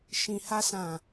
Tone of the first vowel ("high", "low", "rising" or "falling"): low